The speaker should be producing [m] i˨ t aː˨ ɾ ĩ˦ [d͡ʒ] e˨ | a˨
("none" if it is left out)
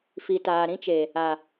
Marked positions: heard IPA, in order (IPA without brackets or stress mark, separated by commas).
f, t͡ʃ